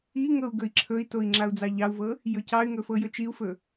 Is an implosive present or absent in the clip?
absent